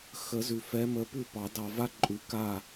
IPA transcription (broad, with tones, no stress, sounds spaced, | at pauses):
x ə˨˩˦ z ʉ˨ f ɛ˨˦ m ə˨˦ p ʉ˥˨ p ɑ˨˩˦ d ɑ˨ v a˦˥ ǃʼ ʉ˨˩˦ k a˥˨